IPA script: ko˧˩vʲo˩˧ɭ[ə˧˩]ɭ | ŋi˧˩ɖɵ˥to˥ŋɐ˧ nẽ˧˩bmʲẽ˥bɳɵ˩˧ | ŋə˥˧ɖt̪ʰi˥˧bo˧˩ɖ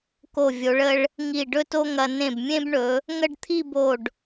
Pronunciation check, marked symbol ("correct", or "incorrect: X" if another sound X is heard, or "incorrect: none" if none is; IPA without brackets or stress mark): incorrect: ə˧